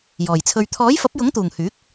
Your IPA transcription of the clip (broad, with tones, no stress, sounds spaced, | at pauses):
j ɔː˨˩ j t͡sʰ ɵ˧ ɥ t̪ʰ ɔː˨˥ j f ɐ˨˥ p̚ j ʊ˨˥ ŋ t̪ uː˨˩ ŋ h yː˨˥ k̚